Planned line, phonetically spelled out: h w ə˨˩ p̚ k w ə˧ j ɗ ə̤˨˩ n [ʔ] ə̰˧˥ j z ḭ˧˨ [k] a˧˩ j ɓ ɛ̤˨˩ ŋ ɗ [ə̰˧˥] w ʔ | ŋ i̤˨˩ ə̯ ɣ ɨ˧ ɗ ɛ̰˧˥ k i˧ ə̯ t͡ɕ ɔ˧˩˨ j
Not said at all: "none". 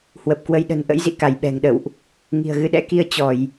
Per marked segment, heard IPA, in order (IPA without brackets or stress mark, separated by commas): ʔ, k, ə̰˧˨